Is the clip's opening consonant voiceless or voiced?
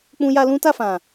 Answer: voiceless